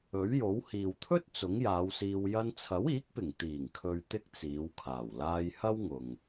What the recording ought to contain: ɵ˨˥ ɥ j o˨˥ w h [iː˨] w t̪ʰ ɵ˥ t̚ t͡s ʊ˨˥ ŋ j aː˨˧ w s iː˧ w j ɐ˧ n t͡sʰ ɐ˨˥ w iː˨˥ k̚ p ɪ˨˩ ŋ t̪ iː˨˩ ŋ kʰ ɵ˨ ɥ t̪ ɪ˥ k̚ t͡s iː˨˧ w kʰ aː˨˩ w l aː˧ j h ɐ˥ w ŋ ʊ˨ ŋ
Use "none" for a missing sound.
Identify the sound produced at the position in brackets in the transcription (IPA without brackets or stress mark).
iː˨